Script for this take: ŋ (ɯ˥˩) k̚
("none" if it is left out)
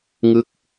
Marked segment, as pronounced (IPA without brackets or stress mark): ɯ˦˥